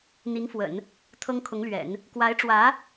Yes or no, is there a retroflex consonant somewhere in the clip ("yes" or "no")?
yes